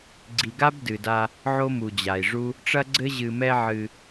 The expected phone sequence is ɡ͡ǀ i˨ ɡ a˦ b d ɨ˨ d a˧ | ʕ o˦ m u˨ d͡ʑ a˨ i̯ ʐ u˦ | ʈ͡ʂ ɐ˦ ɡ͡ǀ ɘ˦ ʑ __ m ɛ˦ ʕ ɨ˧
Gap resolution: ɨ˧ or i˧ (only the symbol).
ɨ˧